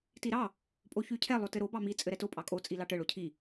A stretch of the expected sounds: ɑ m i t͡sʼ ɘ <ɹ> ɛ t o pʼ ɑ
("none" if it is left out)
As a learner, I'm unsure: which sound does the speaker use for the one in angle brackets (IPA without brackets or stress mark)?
ɾ